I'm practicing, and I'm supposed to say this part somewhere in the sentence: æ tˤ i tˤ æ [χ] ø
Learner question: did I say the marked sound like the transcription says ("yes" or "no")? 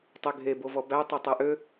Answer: no